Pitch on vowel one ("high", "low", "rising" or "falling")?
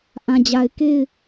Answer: low